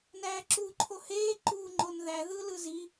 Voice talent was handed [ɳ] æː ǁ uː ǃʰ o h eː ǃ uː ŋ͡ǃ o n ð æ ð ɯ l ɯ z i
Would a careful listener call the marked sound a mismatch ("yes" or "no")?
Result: yes